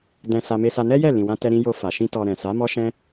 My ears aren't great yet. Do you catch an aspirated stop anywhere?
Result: no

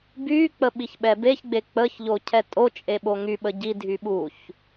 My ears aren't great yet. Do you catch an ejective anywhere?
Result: yes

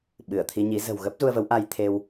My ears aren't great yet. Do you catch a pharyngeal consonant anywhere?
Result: no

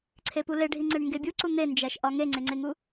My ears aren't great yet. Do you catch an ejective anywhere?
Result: no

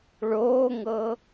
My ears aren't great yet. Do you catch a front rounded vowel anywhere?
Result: no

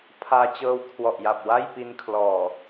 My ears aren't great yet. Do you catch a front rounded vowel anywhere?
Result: no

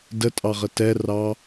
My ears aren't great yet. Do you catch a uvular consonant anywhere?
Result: yes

